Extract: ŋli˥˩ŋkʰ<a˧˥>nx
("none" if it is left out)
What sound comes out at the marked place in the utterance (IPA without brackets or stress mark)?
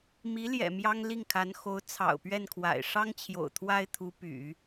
a˧˥